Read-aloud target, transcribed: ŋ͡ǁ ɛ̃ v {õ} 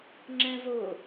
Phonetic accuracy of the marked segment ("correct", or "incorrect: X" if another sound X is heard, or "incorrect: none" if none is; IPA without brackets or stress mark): incorrect: o